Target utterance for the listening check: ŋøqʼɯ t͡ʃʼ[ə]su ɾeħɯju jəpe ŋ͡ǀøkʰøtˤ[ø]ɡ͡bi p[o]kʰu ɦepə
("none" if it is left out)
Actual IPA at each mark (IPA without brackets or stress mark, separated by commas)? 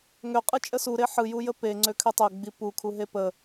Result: ə, ø, u